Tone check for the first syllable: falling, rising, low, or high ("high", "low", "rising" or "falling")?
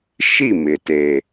falling